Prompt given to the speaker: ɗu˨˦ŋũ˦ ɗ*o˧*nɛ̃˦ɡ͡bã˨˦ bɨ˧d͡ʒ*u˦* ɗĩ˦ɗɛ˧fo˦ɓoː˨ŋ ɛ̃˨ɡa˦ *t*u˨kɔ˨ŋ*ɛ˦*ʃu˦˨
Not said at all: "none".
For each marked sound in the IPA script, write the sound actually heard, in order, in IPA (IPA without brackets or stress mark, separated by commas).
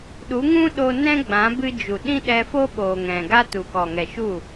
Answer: o˧, u˨, t, ɛ˨